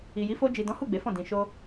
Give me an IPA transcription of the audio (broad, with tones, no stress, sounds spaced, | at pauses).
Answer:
i˨ j i˨˦ f o˧ d͡ʒ i˨ d ɔ̃˨˦ h u˦˨ ɡ͡b e˨˦ f ɔ̃˦˨ d ĩ˨ ʃ o˧